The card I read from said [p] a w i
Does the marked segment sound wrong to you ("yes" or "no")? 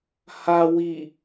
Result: yes